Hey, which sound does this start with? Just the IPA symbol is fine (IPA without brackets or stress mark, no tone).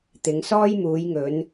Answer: t̪